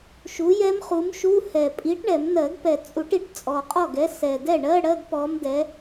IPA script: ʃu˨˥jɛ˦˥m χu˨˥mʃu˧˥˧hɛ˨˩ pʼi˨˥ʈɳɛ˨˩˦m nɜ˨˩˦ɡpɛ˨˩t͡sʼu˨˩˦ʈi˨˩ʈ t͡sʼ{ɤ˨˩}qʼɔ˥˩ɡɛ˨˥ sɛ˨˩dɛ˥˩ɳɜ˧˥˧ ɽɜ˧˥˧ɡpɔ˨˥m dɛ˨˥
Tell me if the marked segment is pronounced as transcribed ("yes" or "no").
no